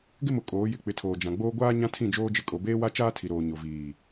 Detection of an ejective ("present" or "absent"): present